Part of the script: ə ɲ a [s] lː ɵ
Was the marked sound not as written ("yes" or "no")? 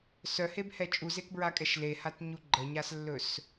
no